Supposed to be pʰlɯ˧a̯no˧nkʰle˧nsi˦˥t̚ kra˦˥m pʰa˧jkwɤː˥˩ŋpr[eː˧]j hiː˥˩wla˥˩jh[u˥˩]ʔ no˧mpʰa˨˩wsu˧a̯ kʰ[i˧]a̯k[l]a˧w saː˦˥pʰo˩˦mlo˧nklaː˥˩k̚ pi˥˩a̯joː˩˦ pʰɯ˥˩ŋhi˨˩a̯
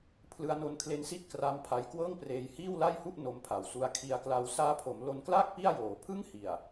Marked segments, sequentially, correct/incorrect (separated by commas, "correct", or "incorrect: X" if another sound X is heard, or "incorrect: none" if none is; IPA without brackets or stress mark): correct, correct, correct, correct